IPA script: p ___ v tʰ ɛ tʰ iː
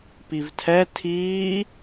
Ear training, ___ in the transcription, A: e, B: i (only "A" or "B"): B